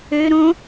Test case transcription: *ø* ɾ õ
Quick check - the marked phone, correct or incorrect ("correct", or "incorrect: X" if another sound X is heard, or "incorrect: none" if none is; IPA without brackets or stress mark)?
correct